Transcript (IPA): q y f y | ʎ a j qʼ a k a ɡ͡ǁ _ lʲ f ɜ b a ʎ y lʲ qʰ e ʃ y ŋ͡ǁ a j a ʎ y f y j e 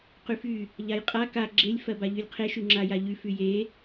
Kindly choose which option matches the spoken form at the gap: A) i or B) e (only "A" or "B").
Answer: B